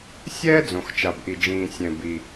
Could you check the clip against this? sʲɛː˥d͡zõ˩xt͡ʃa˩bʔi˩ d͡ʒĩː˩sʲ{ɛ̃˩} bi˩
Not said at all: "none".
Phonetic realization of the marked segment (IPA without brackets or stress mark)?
ɛ̃˩